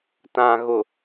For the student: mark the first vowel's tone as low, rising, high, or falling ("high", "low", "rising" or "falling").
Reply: low